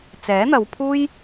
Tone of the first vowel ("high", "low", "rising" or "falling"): rising